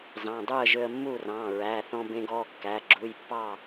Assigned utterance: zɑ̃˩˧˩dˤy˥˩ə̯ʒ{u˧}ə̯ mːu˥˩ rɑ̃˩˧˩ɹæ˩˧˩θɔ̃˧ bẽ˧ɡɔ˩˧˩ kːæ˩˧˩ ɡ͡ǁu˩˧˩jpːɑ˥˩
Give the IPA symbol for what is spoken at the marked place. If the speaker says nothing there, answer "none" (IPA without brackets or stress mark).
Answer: ø˧